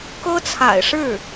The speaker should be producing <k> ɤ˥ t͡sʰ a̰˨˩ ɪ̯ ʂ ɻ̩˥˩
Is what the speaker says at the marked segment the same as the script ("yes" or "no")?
yes